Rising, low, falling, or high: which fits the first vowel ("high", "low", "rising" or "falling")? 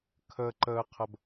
low